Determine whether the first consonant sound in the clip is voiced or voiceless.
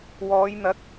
voiced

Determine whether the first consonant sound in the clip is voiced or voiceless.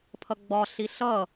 voiceless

